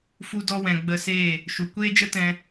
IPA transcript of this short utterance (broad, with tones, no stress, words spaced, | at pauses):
fu˧dɔ˧ wɛ̃˨ɡ͡bə˧seː˦˨ | ʃu˨ kʷeː˦d͡ʒə˦tɛ̃˧